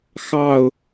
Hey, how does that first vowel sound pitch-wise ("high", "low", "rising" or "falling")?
falling